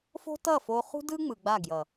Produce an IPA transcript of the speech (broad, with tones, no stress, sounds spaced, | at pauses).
f o̤˦ t ʌ˦˨ f o˧ χ ṳ˦ d ɯ˦ ŋ͡m ɯ˨ ɡ͡b a˦˨ ɡ j ʌ˨